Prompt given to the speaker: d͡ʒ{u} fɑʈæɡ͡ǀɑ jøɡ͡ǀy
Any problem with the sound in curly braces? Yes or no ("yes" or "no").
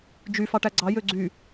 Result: yes